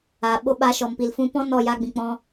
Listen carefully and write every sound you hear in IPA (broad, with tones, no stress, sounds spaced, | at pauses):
aː˨ ɓ o˧ ɓ a˧ ʃ ɔ˨ m p i˨ l f ũ˧ p ɔ̃˦ n ɔ˦˨ j a˧ ɡ͡b ĩ˨ k͡p ɔ̃˧